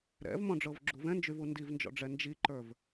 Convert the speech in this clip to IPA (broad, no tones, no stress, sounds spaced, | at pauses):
ɾ ɛ̰ v m ɔ̃ ɖ͡ʐ ɤ v ɡ͡ǁ u v ɛ̃ n d͡ʒ y v u n d i v n d͡ʒ ɔ̰ ɖ͡ʐ ɛ n d͡ʒ i ǃ ə˞ v